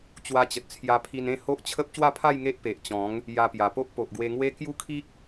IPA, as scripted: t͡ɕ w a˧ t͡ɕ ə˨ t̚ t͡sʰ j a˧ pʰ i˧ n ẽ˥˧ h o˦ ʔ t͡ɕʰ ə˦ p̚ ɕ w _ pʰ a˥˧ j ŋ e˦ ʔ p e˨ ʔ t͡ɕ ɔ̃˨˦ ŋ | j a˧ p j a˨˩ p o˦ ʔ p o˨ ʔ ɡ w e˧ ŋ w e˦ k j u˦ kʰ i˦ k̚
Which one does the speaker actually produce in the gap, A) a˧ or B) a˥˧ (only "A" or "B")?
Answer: B